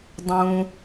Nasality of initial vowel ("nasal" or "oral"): nasal